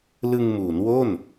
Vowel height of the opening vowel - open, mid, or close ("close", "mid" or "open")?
close